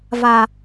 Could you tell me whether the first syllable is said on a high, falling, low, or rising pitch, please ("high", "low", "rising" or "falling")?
low